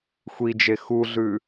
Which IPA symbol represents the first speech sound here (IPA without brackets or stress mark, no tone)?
xʷ